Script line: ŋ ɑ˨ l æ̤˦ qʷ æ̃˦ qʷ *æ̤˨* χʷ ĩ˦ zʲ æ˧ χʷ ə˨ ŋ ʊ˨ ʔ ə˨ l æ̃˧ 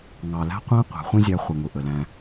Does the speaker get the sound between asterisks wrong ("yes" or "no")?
no